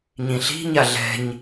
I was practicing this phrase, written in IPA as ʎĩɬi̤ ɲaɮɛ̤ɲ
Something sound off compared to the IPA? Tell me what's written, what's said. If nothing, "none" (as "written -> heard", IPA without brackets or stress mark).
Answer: ʎ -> ɲ